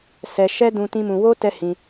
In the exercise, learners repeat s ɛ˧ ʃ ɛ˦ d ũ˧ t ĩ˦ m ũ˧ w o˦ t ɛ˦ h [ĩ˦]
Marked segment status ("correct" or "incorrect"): incorrect